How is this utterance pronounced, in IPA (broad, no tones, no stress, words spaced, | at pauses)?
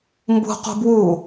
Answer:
mbṳ qṳbwu